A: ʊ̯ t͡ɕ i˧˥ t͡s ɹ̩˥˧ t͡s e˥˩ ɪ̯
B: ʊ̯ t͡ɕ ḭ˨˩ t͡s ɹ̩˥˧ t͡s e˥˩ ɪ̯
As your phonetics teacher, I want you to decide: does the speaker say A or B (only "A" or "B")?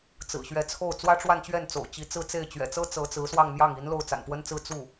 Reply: A